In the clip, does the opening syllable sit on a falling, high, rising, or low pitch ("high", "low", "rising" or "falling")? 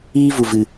high